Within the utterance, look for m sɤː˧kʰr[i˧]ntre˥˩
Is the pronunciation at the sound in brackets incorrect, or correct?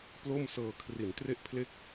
incorrect